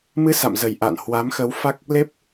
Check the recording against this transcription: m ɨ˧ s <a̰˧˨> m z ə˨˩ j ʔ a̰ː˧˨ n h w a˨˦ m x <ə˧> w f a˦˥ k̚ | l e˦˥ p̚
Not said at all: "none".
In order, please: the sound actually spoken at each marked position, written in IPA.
a̰˧˨, ə˨˦

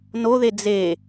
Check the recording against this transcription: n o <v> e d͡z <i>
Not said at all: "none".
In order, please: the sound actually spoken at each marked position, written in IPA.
ð, e

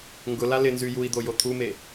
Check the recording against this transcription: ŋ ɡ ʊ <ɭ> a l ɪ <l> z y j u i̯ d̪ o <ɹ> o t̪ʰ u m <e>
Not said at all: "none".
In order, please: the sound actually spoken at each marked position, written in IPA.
l, n, j, e

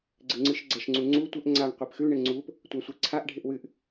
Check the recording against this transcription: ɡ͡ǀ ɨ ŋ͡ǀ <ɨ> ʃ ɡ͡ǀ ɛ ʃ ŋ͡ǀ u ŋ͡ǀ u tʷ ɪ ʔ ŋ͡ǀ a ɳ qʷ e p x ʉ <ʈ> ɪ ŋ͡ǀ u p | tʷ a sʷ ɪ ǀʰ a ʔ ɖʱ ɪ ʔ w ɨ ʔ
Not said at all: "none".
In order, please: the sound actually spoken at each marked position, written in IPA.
ɨ, ɳ

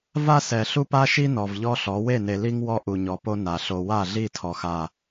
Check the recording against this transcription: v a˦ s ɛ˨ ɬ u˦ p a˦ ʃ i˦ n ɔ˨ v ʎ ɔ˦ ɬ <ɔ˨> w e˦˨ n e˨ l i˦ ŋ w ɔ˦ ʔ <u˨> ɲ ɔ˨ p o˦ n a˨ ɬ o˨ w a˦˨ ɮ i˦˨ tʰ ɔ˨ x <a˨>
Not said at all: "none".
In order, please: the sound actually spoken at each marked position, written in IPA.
ɔ˨˦, u˨, a˦˨

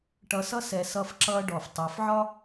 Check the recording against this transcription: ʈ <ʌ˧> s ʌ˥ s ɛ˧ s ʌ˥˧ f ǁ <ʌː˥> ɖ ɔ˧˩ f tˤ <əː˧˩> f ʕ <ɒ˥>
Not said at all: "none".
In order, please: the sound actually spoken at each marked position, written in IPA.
ʌ˧, ʌː˥, əː˩˧, ɒ˥

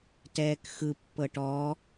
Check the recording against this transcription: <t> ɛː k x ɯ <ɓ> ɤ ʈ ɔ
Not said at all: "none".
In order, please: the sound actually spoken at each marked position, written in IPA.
t, pː

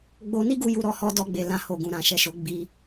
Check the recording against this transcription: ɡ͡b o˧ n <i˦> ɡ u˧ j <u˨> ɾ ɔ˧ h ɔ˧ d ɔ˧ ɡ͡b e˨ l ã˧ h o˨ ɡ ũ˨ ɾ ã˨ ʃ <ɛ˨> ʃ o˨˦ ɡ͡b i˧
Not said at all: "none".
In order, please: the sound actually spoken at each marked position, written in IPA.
i˦, u˨, ɛ˨

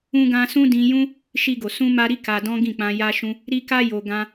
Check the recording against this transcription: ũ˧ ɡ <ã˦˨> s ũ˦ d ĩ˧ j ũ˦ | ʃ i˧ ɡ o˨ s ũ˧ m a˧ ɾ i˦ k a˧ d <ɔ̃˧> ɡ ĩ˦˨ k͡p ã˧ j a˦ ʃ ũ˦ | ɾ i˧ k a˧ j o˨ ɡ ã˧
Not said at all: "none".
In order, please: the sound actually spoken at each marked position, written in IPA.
ã˧, ɔ̃˦

